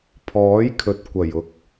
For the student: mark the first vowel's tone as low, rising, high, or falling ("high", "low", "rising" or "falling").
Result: rising